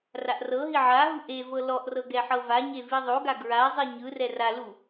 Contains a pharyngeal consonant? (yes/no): yes